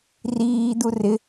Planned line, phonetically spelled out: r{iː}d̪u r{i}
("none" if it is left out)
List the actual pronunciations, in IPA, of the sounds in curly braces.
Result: iː, ɪ

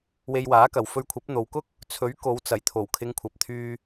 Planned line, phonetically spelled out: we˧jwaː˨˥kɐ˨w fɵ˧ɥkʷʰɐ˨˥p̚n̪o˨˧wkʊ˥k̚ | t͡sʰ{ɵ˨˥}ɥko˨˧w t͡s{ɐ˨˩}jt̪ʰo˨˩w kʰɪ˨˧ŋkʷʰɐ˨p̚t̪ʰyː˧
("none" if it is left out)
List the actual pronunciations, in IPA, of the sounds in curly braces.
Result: ɵ˨˥, ɐ˨˩

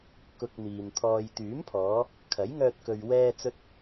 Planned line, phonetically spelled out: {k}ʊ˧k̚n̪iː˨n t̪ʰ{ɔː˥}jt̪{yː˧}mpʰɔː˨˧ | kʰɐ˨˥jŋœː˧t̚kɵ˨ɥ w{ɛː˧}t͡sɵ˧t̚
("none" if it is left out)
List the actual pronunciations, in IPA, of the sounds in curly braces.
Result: k, ɔː˨, yː˨˥, ɛː˧

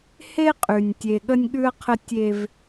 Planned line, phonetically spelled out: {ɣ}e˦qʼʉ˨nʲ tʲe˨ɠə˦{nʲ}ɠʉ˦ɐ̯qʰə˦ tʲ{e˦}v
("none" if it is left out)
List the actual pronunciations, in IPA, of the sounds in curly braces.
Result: h, nʲ, e˦

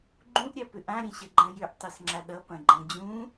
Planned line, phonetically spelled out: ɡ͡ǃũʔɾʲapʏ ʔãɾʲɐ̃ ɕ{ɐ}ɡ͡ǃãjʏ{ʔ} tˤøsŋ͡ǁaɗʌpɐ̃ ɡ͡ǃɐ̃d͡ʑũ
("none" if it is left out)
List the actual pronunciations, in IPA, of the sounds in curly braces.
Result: ɐ, ʔ

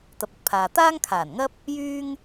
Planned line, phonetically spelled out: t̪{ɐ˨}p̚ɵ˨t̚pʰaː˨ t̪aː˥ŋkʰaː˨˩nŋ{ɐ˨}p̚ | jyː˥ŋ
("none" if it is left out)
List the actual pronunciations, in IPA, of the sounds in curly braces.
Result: ɐ˨, ɐ˥

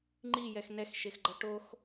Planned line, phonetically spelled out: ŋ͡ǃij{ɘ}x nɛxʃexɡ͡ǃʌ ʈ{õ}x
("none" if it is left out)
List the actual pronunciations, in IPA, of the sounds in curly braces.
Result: ɛ, o

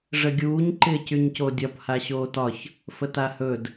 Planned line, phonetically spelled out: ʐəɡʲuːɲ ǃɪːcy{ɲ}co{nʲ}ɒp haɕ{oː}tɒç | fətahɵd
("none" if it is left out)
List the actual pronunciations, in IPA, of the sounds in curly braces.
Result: ɲ, dʲ, oː

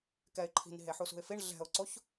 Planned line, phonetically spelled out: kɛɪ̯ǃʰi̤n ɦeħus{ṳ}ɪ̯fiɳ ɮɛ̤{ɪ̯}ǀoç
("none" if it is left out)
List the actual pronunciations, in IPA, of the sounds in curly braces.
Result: ṳ, ʊ̯

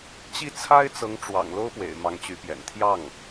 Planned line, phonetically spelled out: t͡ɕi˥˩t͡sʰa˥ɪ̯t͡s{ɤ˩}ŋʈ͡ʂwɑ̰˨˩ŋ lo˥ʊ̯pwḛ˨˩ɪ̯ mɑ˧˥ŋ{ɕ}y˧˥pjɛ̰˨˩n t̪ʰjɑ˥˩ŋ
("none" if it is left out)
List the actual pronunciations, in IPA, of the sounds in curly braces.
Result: ɤ˧˥, t͡ɕ

